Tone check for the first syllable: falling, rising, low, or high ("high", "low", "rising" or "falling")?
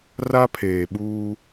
high